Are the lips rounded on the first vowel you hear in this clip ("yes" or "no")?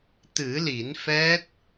no